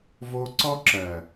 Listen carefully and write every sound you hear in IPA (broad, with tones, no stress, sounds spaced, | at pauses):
v o˧ ǀ ɔ˦ ǁ ɜ˨